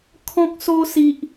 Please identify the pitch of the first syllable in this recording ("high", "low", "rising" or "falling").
high